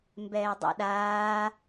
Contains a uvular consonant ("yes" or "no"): no